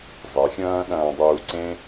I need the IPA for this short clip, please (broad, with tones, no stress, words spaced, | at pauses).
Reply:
zˤe˨˦xʲɐ̃ː˦ɗɐ̃ː˧dˤuː˧ ǀẽ˦